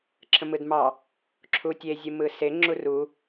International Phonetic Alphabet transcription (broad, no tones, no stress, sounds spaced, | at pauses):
ǁʰ ə̃ m ɯ d m ɑ | ǁʰ u tʲ e zʲ ɯ m ɯ s e ŋ͡ǁ u r u